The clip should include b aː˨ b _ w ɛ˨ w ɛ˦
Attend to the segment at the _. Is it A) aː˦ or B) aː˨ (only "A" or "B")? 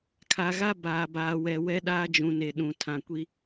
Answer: B